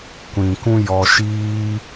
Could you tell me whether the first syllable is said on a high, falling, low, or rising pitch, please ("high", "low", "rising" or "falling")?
low